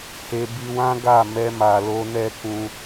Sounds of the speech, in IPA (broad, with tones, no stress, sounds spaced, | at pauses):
h e˧ b i˧ w ã˦ ɡ a˦˨ m ɛ˧ m a˨ l o˧ n ɛ˦ k ũ˧